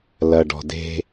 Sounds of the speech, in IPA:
l ɐ˨ ɖ ɔ̤˨ d e̤˦

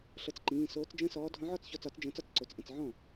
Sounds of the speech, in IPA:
ɬ ɤ˧˩ t͡s ǃ ĩː˩˧˩ s oː˨˥ t͡s d͡ʒ ə̃ː˦ s ɔː˨˥ dʱ ɔ̃˨˥ ʕ ɔ˥˩ t͡s ç ɔ˧˩ t͡s ɒ˨˩˦ t͡s d͡ʒ ə̃ː˨˩˦ t͡s ɒ˥˩ t͡s ǀ o˩˧˩ t͡s ʔ ə̃˧˩ t͡s ʕ ɔ̃˥˩

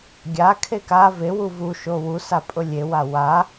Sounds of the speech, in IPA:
ɡʲ a kʰ e k a v e w u v u ʃ o w u s a pʼ ʊ lʲ e w a w a

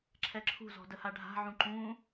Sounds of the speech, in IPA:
ǁʰ ɛ ǁʰ ṳ z ɔ̤ d ə h a ɖʱ a̤ ʕ ũ ǃ ũ

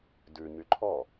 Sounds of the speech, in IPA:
d ʉ ɲ y ǃʰ ɔ

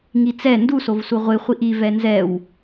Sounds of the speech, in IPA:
ŋ i t͡s ɛ n d u s o v s u ʁʷ ɪ χʷ i ʔ i v ɛ n z ɛ w

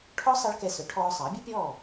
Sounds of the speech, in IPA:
ʈʰ ɔ˥ sˤ ʌ˥ ɭ k ɛ˧ s œ˩˥ ʈʰ ɔː˧ sˤ ʌː˩˥ bʲ ɵ˥ pʲ ɔː˥˩

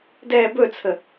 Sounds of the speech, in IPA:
d ɛː b ɵ t͡sʰ ə

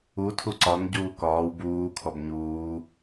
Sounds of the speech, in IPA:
u tʰ u ǀ ɒ n ɟ uː k ɒː w b uː kʰ ɔ b ɲ uː

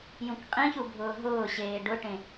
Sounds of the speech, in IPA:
j ũ k qʼ ĩ ç u bʱ ʊː ɦ ʊː ɕ eː ɖ ʊ ʈ ẽ

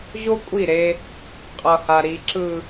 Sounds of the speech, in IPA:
ʑ o˦ kʷʼ i˦˨ ɾ e˦ | qʼ ʌ˨ h a˨ ɾ i˨ ǁ ɯ˨

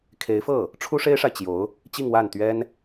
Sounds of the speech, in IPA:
kʰ e˧˥ ɪ̯ f ɤ˥˩ | ʈ͡ʂʰ u˥ ʂ e˥ ɪ̯ ʂ a˨ ɪ̯ t͡ɕ j o˧˥ ʊ̯ | t͡ɕ i˥˧ ŋ w a˥˩ n t̪ ɥ ɛ˥ n

